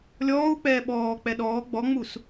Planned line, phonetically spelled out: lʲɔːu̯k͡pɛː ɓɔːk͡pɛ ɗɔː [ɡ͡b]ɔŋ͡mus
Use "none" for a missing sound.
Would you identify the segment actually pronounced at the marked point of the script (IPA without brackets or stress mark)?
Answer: ɡ͡b